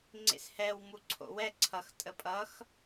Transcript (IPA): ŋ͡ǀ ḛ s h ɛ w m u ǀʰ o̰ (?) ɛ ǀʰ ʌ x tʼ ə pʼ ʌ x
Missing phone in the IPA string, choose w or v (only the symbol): w